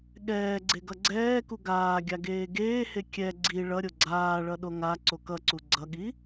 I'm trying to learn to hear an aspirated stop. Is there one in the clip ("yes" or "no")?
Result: no